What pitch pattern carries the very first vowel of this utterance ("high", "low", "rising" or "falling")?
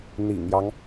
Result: low